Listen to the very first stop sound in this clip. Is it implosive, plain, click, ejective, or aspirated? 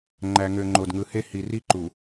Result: click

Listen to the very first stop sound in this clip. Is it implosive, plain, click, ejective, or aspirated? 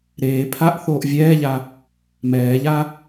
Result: aspirated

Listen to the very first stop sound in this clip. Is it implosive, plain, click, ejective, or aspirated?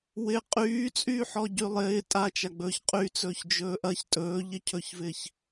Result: ejective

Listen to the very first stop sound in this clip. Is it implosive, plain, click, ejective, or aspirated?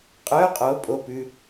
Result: ejective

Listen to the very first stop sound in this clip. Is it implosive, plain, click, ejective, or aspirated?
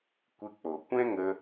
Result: plain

